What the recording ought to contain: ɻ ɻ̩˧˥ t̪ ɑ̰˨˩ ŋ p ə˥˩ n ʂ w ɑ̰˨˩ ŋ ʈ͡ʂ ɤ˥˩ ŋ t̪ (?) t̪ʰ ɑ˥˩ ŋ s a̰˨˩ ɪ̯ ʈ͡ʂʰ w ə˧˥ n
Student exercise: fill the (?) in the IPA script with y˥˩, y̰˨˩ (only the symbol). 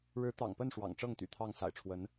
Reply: y̰˨˩